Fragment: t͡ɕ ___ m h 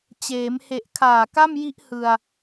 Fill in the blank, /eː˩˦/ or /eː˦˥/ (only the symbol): eː˩˦